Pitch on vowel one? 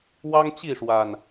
high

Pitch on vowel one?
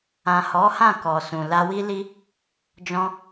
low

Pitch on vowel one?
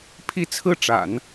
falling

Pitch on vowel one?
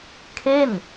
falling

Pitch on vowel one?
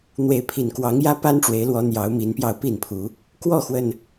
rising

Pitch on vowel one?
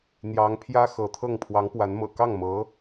rising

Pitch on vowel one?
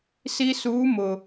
high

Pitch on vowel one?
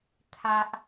high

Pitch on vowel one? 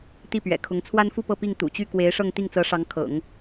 falling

